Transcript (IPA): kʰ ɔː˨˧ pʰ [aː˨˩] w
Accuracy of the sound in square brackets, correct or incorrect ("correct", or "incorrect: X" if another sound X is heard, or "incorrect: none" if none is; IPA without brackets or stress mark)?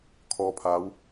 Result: incorrect: aː˨˧